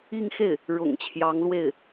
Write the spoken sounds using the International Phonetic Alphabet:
i˥˧ ŋ x e˥˩ ɪ̯ | ɻ ʊ̰˨˩ ŋ t͡ɕʰ j ɑ˧˥ ŋ l w e˥˩ ɪ̯

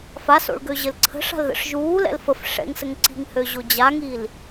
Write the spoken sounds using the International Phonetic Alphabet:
f a s o̰ ɭ ɡ ø ʑ ɘ l ǀʰ ə̤ ʂ a̤ l ð ə̰ ʂ ʒ uː l ɛ̰ l f ə f ʂ ɛ̰ ŋ s ə ŋ ǀ i̤ ŋ h ø ʑ o d͡ʑ a ŋ i l

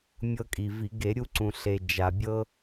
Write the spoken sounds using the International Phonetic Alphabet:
mʲ ɤ˧ kʼ i˩ v i˧˩˧ ɡ e˧˩˧ ɾʲ u˧ ǀ ũ˩ ɬ e˩ d͡ʒ a˩ bʲ ɤ˧

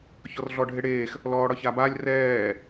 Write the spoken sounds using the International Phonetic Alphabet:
ç ɔ r ɮ ɔ ɖʱ e ɽ eː x | l ɔː ɽ ɒ ç a b a lʲ r ɛː

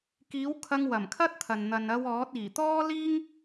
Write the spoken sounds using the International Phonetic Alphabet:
k iː˨˥ w kʰ ɐ˧ ŋ w ɐ˨˩ m kʰ ɐ˥ t̚ t̪ʰ ɐ˨ n n̪ ɐ˨ n ɐ˧ w ɔː˨˥ t̚ iː˨˩ t̪ ɔː˥ l iː˥ ŋ

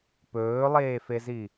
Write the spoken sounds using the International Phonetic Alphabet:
p ɵː lˠ eː f e z i

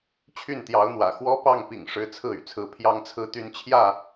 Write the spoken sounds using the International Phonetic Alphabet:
t͡ɕʰ y˥˨ n t̪ j ɑ˨˦ ʊ̯ n̪ w ä̰˨˩ x w ɔ˦ p ɑ˥˨ ŋ p ḭ˨˩ ŋ ʂ ɻ̩˦ t͡sʰ ɹ̩˥˨ y̰˨˩ t͡sʰ ɹ̩˨˦ pʰ j ɑ˨˦ ŋ t͡sʰ ɹ̩˨˦ t̪ y˨˦ n t͡ɕʰ j ä˥˨

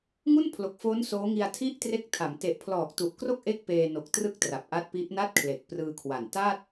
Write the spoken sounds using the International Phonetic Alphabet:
ŋ u˥˩ n pʰ l o˨˩ k̚ f oː˦˥ n s oː˦˥ ŋ i˧ a̯ tʰ i˥˩ ʔ t r e˦˥ k̚ tʰ a˩˦ m t e˨˩ ʔ pʰ l ɔː˨˩ k̚ t u˨˩ ʔ k r o˥˩ k̚ ʔ e˥˩ k̚ p eː˧ n o˨˩ k̚ t r ɯ˥˩ k̚ t r a˨˩ p̚ ʔ a˦˥ t̚ p i˦˥ ʔ n a˥˩ t̚ kʰ l e˨˩ k̚ p r ɯː˧ kʰ w a˨˩ n t a˥˩ t̚

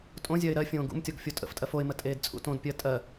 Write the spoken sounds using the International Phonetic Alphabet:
tʼ õ zʲ ɜ ɪ̯ ɾ ɜ fʲ õː ɡ ṵ m tʲ ɔ ɡ fʲ o tʼ ə̰ f tʼ ɜ f o ɪ̯ m ə tʼ eː d t͡sʼ ṵ t õ d pʲ ɜ tʼ ɜ

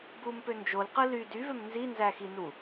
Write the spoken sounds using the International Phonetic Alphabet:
b u m p ø n d͡ʒ o l q ɯ l y d y v ø m n z i n z æ x i n u

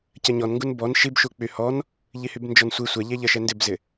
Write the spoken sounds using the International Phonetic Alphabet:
c ɜ ɲ ɔ n ŋ ɡ u n b ɔ n ʃ i b ʃ u k͡p y h ɔ n | ʎ i h y b n d͡ʒ ɔ n sʷ i sʷ ɛ ʎ ɛ ʎ ɜ ʃ ɛ n d ɪ b z ɪ

